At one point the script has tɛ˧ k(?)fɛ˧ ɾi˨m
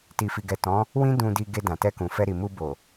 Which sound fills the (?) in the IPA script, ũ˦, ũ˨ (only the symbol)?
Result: ũ˨